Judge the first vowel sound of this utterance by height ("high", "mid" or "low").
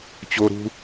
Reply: mid